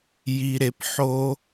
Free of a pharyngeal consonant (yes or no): no